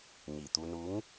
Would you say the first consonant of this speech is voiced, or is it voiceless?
voiced